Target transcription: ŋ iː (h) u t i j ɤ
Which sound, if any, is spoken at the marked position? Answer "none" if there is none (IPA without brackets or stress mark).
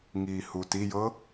h